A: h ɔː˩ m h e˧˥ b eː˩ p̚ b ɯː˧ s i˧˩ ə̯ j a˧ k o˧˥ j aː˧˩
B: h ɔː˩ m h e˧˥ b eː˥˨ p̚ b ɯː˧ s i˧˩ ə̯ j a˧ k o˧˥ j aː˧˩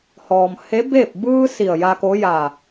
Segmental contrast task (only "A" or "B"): B